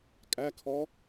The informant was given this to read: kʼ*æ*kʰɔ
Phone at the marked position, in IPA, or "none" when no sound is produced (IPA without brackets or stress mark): æ